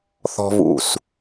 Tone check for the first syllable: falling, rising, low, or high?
high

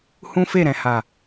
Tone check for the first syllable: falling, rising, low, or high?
high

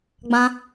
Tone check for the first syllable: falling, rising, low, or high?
high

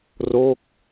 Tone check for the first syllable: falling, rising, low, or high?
falling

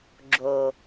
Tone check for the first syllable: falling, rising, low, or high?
low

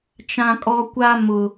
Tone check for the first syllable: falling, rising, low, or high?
high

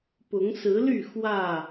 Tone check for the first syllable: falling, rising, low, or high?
rising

